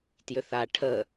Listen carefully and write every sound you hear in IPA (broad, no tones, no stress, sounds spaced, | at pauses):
t j ʏ θ a ʈʰ ə